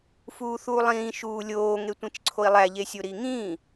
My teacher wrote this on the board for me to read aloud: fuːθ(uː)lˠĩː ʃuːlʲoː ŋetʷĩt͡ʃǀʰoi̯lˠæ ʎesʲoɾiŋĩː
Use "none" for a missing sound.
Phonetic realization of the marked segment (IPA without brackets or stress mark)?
uː